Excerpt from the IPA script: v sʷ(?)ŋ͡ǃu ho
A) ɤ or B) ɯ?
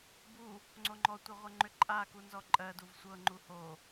A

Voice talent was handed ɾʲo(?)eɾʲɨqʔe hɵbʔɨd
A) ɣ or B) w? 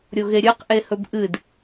A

